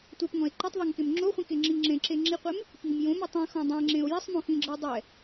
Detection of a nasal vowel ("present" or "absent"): present